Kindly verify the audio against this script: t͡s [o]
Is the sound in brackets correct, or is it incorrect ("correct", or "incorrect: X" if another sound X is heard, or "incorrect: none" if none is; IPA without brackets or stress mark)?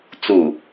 incorrect: u